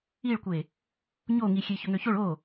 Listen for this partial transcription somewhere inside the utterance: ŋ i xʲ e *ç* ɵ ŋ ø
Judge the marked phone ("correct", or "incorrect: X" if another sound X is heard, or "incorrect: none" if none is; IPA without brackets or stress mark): correct